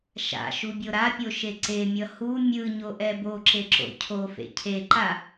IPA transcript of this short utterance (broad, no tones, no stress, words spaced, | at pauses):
ʃa̰ ʃubʲoɾapʲo ʃeǀemʲʌ hu mʲɯɲo ʔɛboǁe ǁo̰cʰofḛ cʰeǃa